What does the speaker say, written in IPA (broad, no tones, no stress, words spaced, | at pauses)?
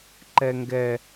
ǃɛŋɡɛ